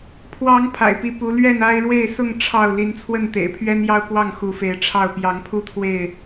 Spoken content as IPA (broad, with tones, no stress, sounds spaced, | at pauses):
pʰ w ɑ˨˦ ŋ pʰ a̰˨˩ ɪ̯ p i˨˦ p u˨˦ l ɥ ɛ˥˨ n a˦ ɪ̯ ɻ w e˥˨ ɪ̯ s ʊ˥˨ ŋ ʈ͡ʂʰ ɑ˥˨ ʊ̯ l i˨˦ n t͡sʰ w ə˥˨ n t̪ ḛ˨˩ ɪ̯ pʰ ɥ ɛ˦ n j ɑ˦ ʊ̯ k w ɑ˥˨ ŋ x u˨˦ f e˨˦ ɪ̯ ʈ͡ʂʰ ɑ˥˨ ʊ̯ p j ɑ˨˦ ŋ pʰ u˦ t̪ʰ w e˥˨ ɪ̯